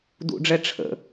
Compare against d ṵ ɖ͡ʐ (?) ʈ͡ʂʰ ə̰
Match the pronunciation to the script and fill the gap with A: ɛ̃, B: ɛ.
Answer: B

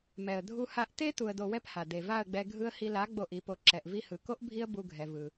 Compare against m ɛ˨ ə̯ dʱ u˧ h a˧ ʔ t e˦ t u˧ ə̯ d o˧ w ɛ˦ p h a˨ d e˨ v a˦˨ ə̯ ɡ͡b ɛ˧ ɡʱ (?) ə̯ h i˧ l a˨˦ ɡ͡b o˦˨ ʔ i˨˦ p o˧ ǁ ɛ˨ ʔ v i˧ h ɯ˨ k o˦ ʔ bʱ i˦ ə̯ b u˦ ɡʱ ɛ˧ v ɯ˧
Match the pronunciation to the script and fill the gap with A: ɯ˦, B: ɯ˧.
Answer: B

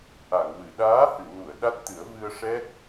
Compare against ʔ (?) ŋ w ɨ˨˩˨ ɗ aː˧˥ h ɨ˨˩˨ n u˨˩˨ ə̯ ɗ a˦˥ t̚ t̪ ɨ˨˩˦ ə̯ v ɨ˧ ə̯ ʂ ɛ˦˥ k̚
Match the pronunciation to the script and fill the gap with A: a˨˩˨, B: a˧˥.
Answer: A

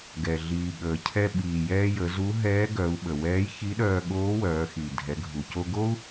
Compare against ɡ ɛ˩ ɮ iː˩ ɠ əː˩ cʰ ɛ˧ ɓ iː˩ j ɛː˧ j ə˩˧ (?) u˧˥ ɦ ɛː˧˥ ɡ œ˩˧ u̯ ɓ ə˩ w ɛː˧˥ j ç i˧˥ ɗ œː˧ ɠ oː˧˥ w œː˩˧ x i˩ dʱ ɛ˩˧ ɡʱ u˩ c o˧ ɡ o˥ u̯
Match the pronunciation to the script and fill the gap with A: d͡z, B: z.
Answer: B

